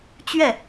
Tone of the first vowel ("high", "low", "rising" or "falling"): falling